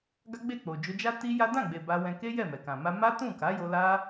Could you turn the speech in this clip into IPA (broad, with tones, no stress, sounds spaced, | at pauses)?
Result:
ɡ a˦ ɡ͡b e˦˨ k͡p o˨ d͡ʒ o˧ d͡ʒ a˦ t i˦ j a˦ d ã˦˨ ɡ͡b e˨ b a˧ w ɛ̃˧ k e˦ j ɛ˦˨ m ɛ˨ k ã˨ m a˧ m a˦ t ũ˦˨ k a˨˦ j o˧ l a˦